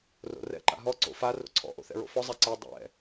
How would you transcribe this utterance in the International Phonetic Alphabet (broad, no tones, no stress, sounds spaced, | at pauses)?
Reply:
r o̰ r ɛ̰ ǃ a̰ ɦ ɔ ǀ o̰ f a r o̰ ǀʰ ɔ̰ ʔ o̰ θ ɛ̰ ɹ o̰ f ɔ zˤ ɛ ǀ ɛ dˤ ɛ̰